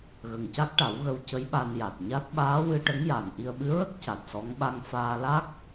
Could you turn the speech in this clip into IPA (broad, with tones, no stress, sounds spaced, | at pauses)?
ɣ ə˨˩ ŋ c a˦˥ k̚ ʈ a˨˩˦ w ɣ ə˧ w c ə˧˥ j ɓ a˧ n j a˨˩ t̚ ɲ a˦˥ t̚ ɓ aː˧˥ w ɨ˧ ʈ ə˧˥ ŋ j a˨˩ n ʔ i˧ ə̯ ɓ ɨ˧˥ ɹ ə˦˥ k̚ c a˨˩ t̚ s ɔ˧˥ ŋ ɓ a˧ ŋ f aː˧ l a˦˥ k̚